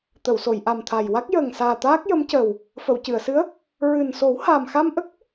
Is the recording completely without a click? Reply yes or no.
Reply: yes